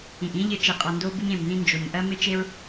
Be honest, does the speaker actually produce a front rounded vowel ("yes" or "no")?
no